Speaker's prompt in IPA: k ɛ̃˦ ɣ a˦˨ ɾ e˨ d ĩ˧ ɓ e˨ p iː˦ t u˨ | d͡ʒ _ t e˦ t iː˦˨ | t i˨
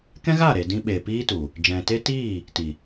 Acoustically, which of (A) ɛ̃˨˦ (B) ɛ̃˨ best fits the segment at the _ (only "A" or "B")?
B